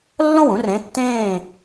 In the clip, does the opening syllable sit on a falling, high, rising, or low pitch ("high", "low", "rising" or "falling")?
falling